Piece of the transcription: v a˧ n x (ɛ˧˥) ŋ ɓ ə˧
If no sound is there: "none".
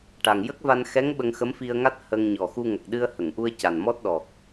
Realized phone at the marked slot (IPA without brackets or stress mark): ɛ˧˥